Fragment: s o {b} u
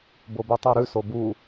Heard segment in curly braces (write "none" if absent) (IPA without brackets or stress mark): b